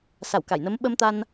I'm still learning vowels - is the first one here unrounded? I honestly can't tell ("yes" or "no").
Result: yes